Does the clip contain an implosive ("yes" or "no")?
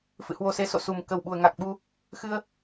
yes